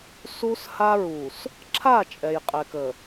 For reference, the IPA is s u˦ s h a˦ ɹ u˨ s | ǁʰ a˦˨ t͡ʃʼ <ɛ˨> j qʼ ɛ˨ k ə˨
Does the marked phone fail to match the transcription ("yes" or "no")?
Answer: no